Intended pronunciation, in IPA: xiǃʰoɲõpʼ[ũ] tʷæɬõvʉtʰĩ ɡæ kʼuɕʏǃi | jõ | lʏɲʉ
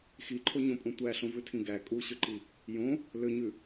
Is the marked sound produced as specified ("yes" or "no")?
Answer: yes